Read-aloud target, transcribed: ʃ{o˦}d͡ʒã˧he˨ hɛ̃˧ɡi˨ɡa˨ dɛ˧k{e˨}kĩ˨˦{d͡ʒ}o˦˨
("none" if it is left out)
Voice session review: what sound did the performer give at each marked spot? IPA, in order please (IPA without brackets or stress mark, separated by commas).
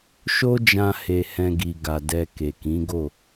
o˦, e˨, ɡ